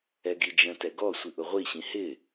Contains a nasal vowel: yes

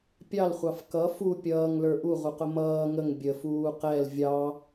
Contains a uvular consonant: yes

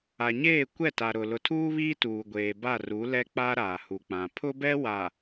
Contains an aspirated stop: yes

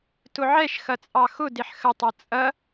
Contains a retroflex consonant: no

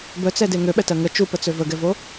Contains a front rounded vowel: yes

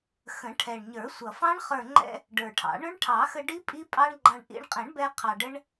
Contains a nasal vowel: yes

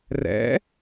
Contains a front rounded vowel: no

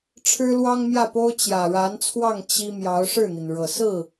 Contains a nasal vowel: no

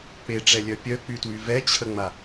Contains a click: no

